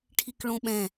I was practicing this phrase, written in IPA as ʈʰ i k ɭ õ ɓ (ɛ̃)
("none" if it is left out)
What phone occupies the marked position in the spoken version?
ɛ̃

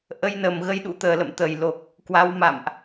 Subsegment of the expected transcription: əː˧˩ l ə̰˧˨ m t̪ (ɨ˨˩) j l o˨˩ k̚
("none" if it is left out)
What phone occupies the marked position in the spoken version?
ə˨˩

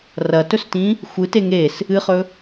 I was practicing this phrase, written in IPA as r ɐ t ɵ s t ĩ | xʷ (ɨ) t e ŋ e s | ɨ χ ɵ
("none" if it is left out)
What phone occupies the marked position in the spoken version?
ɨ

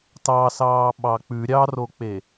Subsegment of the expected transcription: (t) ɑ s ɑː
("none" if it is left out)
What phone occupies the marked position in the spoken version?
t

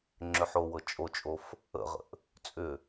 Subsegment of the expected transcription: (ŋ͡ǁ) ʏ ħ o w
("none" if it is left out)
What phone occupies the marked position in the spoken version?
ŋ͡ǁ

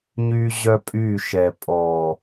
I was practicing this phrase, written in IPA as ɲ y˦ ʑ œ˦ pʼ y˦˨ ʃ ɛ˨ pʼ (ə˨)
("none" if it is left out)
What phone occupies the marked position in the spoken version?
ɔ˨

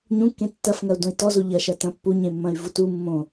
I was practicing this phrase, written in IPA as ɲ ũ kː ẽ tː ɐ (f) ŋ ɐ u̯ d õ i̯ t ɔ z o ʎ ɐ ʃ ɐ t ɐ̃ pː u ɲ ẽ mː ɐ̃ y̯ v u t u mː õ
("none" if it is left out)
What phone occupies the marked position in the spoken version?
f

